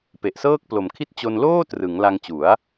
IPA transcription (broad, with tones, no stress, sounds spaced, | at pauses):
p e˨˩ ʔ s ɤː˥˩ k̚ p l o˨˩ m kʰ i˥˩ t̚ t͡ɕ o˧ n l oː˥˩ t r ɯ˩˦ ŋ l a˧ ŋ t͡ɕ u˩˦ a̯